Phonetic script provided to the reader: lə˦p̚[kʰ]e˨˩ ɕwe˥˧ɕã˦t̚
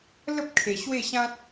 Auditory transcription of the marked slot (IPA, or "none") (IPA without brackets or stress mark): kʰ